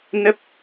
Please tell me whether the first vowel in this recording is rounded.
no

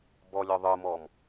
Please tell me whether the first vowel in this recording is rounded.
yes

